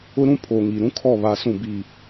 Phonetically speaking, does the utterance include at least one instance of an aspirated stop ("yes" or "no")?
yes